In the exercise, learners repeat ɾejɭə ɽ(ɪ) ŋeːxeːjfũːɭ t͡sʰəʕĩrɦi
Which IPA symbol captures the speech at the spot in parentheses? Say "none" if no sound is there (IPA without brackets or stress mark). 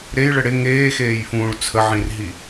ɪ